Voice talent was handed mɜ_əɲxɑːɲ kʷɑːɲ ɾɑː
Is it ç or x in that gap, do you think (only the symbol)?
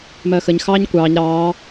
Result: x